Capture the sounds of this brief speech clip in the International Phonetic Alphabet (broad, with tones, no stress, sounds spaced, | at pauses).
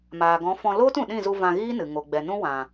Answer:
m aː˨ ɡ ɔ̃˨˦ f ɔ̃˧ l oː˦ t ũ˨ ɗ ĩ˦˨ z u˧ v ã˧ ɣ iː˦ n ɨ˨ ŋ o˨ ɡ͡b ɛ˨ n ũ˦ w ã˨